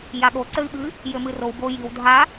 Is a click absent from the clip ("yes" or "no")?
no